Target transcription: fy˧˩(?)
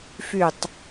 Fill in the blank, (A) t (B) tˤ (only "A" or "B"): B